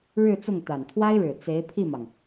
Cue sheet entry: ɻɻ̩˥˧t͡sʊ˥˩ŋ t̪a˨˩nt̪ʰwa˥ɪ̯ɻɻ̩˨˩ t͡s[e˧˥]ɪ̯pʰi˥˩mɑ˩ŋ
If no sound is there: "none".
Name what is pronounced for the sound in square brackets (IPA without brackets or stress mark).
e˧˥